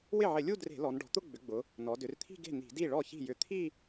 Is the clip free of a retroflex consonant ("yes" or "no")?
no